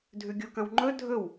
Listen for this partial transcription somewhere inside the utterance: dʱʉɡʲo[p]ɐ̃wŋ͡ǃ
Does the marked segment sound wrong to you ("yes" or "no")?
yes